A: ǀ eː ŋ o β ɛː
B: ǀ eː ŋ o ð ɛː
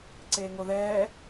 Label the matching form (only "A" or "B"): B